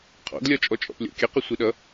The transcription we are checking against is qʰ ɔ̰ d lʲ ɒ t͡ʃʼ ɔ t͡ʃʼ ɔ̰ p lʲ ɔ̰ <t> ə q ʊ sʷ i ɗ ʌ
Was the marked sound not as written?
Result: yes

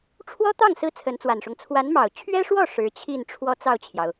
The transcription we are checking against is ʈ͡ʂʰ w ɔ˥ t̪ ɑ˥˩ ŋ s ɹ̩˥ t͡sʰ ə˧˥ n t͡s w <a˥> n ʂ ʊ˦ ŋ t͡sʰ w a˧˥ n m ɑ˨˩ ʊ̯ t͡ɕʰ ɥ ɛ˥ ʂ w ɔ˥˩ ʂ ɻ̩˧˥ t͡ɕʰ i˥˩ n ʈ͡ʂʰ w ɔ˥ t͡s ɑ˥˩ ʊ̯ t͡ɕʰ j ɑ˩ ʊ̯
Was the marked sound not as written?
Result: yes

